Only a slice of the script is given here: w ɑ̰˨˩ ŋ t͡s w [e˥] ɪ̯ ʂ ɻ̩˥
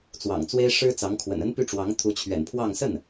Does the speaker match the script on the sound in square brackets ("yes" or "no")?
yes